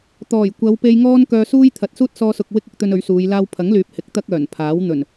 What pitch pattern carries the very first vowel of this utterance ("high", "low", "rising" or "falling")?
low